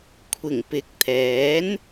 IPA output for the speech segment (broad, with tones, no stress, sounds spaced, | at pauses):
kʷʰ ɪ˨˩ ŋ p ɪ˨˥ k̚ t̪ʰ ɛː˨˥ n